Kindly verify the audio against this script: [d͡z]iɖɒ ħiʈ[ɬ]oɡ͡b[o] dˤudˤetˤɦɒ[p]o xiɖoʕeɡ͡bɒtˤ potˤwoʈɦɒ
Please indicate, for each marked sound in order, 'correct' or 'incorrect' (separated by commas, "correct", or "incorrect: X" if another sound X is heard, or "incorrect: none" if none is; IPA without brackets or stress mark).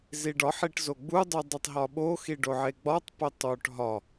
incorrect: z, incorrect: z, incorrect: u, incorrect: ɓ